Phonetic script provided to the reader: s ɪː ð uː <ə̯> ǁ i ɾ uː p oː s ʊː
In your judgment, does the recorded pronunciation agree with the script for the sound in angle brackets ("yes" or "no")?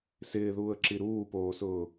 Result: yes